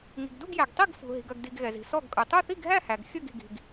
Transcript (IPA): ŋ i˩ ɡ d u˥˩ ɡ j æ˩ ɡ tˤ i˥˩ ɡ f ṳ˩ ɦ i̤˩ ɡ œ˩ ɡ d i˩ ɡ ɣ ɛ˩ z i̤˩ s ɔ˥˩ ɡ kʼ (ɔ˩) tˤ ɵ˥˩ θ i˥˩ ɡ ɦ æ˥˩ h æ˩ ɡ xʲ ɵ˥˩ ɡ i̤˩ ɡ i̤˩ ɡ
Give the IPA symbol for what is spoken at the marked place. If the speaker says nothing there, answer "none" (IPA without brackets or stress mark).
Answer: ɵ˩